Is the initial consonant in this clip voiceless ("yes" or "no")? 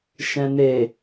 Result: yes